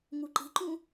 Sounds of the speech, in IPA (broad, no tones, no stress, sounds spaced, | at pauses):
ŋ u ǃ i̤ ǃ ũ